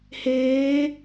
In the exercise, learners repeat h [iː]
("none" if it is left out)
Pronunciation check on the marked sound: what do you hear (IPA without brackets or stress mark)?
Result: eː